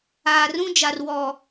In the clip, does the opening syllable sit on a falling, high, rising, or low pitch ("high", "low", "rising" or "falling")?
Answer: low